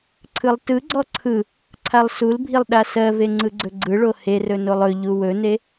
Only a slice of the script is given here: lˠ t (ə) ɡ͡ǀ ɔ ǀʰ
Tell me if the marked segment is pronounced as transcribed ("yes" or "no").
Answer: no